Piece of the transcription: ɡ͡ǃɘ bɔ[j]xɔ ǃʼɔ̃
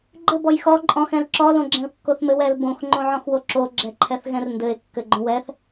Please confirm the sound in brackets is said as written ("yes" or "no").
yes